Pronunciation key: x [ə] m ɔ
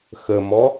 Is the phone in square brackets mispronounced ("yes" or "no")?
no